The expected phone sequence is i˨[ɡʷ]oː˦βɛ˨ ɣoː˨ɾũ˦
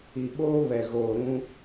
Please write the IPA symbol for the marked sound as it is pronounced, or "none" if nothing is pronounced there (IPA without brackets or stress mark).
ɓ